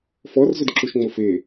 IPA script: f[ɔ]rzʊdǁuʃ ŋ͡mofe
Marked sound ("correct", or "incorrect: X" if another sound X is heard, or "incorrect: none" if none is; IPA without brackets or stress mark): correct